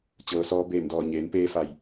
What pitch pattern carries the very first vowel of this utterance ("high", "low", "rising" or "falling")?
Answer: low